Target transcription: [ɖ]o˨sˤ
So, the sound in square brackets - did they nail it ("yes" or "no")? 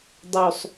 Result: no